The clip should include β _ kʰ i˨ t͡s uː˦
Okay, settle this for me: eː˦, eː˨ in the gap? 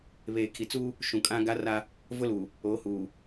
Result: eː˨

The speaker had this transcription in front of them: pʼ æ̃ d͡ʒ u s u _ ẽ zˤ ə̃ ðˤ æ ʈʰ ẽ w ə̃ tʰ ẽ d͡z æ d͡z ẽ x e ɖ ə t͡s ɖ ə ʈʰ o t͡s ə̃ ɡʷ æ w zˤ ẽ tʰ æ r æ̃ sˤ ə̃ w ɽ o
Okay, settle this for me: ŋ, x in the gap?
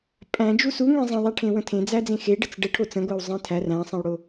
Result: ŋ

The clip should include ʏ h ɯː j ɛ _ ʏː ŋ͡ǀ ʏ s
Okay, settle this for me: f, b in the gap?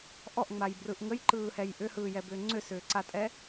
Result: b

